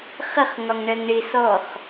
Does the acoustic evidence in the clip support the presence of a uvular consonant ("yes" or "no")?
yes